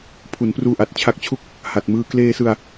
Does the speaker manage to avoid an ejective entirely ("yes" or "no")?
yes